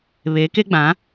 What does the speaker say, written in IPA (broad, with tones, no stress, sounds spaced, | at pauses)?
β e˨˦ k e˦ ɡ͡b ã˨˦